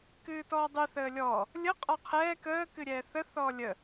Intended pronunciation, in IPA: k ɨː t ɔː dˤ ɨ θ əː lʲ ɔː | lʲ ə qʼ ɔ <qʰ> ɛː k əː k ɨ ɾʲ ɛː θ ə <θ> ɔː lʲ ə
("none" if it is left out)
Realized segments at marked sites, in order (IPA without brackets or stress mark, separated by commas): qʰ, θ